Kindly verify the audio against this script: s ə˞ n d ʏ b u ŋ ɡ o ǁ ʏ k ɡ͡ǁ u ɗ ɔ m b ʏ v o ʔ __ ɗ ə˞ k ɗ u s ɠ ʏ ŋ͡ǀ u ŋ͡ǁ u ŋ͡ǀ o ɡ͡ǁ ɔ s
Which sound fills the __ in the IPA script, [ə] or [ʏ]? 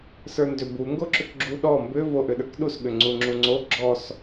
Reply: ʏ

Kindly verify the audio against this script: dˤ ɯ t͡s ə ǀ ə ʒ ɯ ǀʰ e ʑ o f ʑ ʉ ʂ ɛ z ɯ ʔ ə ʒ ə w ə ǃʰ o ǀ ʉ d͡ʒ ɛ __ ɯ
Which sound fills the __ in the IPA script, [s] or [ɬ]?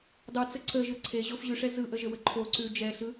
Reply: ɬ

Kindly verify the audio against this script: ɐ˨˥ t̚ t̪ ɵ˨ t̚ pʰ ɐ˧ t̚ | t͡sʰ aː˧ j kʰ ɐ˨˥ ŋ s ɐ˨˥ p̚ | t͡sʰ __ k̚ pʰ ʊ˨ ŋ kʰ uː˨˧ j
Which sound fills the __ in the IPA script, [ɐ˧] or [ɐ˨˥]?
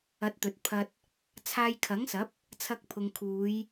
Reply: ɐ˧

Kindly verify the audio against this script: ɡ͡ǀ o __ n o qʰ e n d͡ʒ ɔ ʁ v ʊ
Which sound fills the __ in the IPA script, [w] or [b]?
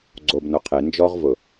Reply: b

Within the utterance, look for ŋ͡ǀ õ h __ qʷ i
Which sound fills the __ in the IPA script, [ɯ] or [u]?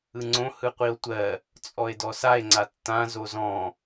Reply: ɯ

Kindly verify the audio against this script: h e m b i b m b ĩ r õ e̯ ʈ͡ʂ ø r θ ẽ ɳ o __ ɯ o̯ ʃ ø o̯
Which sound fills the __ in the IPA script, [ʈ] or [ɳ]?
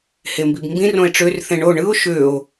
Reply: ɳ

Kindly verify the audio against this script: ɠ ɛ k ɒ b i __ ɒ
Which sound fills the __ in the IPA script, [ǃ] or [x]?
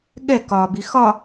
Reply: x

